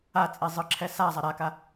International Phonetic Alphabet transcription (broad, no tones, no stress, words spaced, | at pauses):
at͡sʼi zˤɯǁʰɛsazˤa ɾaka